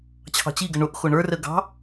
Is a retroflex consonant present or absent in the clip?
present